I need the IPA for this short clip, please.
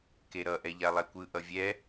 keɾʌ ʔɛʎalˠɛkʷɯ ʔʌvʲɛ

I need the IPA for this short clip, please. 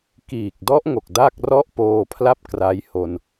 kiː˨˩k̚dɔ˦˥ʔŋo˨˩k̚ da˥˩k̚rɔ˥˩ʔpoː˧pʰla˥˩p̚ kra˦˥jho˧n

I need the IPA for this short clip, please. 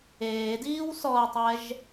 eːdiːw sɔɐ̯tˤɛʒ

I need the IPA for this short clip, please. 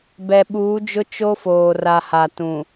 bɛ˨ɓuː˨˦d͡ʒʊ˦ t͡ʃo˦foː˨ ra˨ha˨ tũ˨

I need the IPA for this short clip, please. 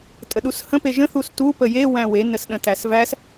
tʼəɗushə̃ peʒə̃ θustu pəje wæ̃we nəsɗə̃tæsvæs

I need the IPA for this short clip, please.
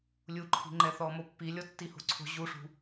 lʲuǃʰi̤ ŋ͡ǃɛθɔmopːi lʲɔtːiho̤ǀʰo̤ ʑuʂṳ

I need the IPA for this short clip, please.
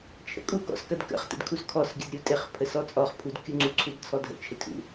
t͡ʃʰə̰kʼukɔ̰s kɐdkə̰χtə̰d kʰuskʰɔsɡʲəd ɾʲutʼɪχpʰəs ɔt͡sʼɔχpʰud kʲuŋ͡ǀuǀʰud t͡sʰɔdʱə̰t͡ʃʰɪ tʰṵ

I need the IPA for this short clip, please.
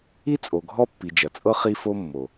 i˦ t͡sʼo˨ɡʱɔ˦ pːi˨d͡ʒɐ˨t͡sʼɤ˦ χi˦fo˦mːo˨

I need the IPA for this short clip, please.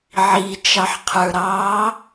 ʕit͡ʃɑħqʰə˞ɾɑː

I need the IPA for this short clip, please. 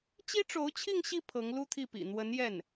t͡ɕi˥ʈ͡ʂo˧˥ʊ̯t͡ɕʰi˥˧ŋɕi˥˩ pʰɤ˧˥ŋlu˥t̪ʰi˥˩pḭ˨˩ n̪wə˧˥njɛ˥˩n

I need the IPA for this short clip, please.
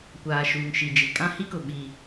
kʷaː˨ʃuː˨ŋʃi˨d͡ʒi˨ kʼã˦hi˦kʊ˨ ɓi˦

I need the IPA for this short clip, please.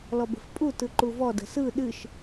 lɔbə̤fpʼu tɯǃuvɔ də̤sɯ ɗɨʃ

